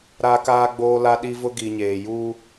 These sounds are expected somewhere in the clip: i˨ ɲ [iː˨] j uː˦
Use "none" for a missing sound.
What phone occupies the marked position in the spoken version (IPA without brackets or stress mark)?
eː˨